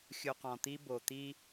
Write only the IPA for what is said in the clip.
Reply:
xʲu˨qɔ̃˨t̪i˦ bo˨t̪i˦

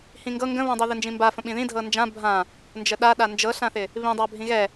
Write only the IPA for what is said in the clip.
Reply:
hĩŋɡɤ ŋɡə̃βõdˤi ðɪnd͡ʒĩmba fə̃ɓĩðĩ dʱɤnd͡ʒã bʱã | nd͡ʒəɗa ɗand͡ʒɤɬãθɪ | βĩdˤa bʱĩɣɛ

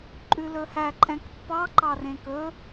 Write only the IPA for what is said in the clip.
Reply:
ǃʼʉlɵhæ ǃʼɛ̃kpːɑ ǃɑrẽkɵ

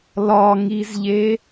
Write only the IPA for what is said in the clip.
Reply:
lɒŋizʎe

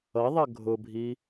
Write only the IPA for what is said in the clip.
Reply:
ʌðˤʌ ɡʱʊbʱi

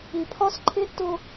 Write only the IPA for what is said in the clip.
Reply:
i˨pʰɒ˦sǃʰɪ˦ tʊ˦

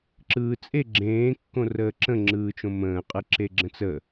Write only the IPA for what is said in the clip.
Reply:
ǁɯːt͡sʼe ɡ͡ǁẽː kːõrəːǁə̃ ŋ͡ǁɯːt͡ʃõmə̃ː qʼɯǁeɡ͡ǁə̃t͡sə

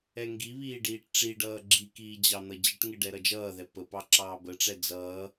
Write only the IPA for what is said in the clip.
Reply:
ɛŋɡiβiː ɖiːʈʈ͡ʂiɖʌː ɡ͡ǁikiː d͡ʑɑn̪ʌd͡ʑəʈŋɪ ɖɛɾʌd͡ʒʌːðɛ pəpɑ ǁɑːbəʈ͡ʂɛ d͡zʌː

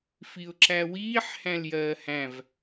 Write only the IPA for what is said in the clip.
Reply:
fiʊ̯ǁæwiːħ hæ̃ljɜːhæ̃v

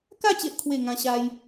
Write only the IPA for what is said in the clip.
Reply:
ka˥˧t͡ɕe˨ʔkʰwe˨˩ ŋã˧ ɕa˦j

